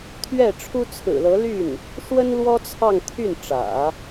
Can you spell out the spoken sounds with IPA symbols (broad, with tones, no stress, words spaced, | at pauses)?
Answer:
t̪ʰɥɛ˥˩ʈ͡ʂʰu˥t͡sʰɹ̩˨˩lɤ˧˥ ly˥˩n | ʂwə˥nlwɔ˥ t͡sʰɑ˥˧ŋt̪ʰy˥˩n ʈ͡ʂä̰˨˩˦